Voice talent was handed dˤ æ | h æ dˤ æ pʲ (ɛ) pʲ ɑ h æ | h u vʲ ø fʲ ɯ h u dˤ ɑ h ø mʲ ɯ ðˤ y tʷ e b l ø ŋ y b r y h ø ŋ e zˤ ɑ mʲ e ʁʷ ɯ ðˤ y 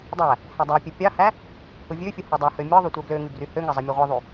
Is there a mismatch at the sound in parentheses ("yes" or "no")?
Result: yes